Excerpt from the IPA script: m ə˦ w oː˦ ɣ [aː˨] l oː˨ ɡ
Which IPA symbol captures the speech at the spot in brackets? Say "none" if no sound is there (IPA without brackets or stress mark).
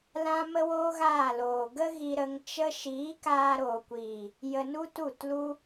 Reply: aː˦˨